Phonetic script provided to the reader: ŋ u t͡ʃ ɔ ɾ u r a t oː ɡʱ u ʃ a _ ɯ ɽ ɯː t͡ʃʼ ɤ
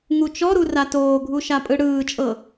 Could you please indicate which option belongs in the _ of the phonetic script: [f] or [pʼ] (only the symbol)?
pʼ